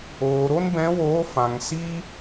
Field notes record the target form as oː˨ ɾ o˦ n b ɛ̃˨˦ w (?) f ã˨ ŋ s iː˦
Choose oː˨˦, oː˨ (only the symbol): oː˨˦